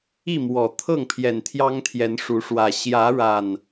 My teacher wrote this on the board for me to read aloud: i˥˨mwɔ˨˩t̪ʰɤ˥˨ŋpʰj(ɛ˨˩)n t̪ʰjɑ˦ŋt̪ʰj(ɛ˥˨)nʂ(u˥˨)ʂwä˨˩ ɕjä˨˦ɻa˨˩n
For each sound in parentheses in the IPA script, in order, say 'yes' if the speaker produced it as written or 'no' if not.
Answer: yes, no, no

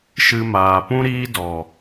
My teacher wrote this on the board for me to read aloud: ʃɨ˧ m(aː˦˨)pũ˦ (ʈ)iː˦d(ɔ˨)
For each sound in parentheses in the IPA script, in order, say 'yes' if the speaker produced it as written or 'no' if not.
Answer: no, no, yes

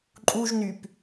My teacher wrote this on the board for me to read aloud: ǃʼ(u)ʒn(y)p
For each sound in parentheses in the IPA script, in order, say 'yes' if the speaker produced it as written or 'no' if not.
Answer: yes, yes

